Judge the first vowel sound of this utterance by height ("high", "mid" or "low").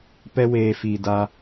mid